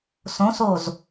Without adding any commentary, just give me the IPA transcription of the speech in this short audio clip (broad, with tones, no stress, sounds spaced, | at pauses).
s õ˧˥ s o˦˨ z